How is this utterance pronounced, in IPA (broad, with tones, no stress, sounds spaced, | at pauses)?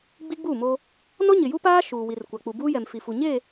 ɡ͡b i˦ ɡ͡b u˦˨ m o˦ | n ɔ˦ ɲ ɪ˨ j u˦ p aː˦ ʃ uː˨ w i˨ r kʷ a˨ k͡p u˨ b uː˦ j ɛ˨ m f i˨ f u˨ ɲ e˦˨